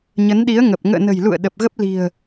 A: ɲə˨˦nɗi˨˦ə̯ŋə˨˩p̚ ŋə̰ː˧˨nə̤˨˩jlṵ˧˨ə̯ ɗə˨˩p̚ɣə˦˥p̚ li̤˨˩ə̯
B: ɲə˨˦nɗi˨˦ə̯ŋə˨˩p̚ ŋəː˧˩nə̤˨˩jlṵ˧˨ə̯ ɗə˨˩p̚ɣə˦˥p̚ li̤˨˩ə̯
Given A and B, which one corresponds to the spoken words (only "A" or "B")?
A